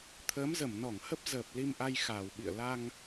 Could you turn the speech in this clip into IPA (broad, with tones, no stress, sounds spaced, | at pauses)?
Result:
t̪ʰ əː˨˦ m z ə˧˩ m n ɔ˧˩ ŋ h ə˦˥ p̚ z əː˨˩ p̚ l i˧ m ʔ a˧ j x aː˨˩ w ɓ ḭ˧˨ ə̯ l a˧ ŋ